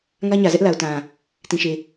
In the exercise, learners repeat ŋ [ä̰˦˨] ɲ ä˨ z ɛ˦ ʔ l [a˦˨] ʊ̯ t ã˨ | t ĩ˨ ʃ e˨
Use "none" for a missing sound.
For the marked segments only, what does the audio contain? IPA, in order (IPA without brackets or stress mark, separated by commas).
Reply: ä˦, a˨